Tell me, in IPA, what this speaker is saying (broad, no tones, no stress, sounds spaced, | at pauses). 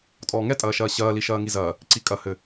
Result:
tʼ ɔː ŋ ɛ tʼ ɐː ʃ ɐː ɕ ɐː l i ʃ ɐː ŋ i z ɐː | ǀ i kʼ ɐ h ɘ